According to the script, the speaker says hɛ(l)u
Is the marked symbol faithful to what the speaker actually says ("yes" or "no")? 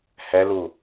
yes